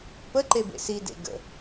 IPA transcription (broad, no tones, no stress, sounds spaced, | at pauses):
p ə ǃ e b ḛ s i d ḛ ɡ ə̰